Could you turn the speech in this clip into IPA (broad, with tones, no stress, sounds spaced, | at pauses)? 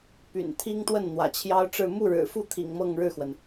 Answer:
p y̰˨˩ n t̪ʰ i˥ ŋ t̪ w ə˥˩ n n̪ w ä̰˨˩ t͡ɕʰ j ɑ˥ ʊ̯ ʈ͡ʂ ɻ̩˥˧ m u˥˩ ɻ ɻ̩˨˩ f u˥˩ t̪ʰ ḭ˨˩ ŋ m ɤ˥˧ ŋ ɻ ɻ̩˥˩ x w ə˩ n